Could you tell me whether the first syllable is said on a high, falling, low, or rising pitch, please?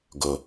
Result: low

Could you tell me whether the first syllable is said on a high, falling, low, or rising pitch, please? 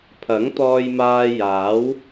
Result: rising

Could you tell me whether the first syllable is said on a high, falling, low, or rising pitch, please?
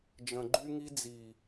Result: low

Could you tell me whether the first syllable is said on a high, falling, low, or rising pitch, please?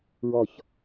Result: falling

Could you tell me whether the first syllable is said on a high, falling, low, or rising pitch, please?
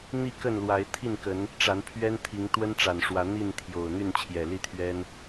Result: falling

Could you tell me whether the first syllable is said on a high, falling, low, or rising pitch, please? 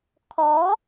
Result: rising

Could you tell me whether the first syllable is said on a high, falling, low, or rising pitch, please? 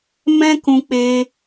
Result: high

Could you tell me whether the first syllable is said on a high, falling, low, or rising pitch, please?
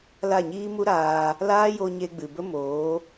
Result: falling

